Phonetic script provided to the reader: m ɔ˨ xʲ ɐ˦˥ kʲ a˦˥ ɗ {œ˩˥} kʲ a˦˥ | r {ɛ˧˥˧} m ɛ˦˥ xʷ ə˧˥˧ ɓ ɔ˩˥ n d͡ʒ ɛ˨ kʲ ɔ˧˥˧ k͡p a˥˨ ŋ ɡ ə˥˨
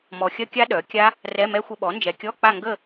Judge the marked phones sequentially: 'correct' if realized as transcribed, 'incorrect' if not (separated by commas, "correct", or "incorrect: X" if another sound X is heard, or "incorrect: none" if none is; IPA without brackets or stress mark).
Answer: correct, correct